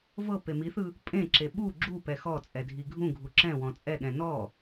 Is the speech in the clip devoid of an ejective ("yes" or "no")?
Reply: no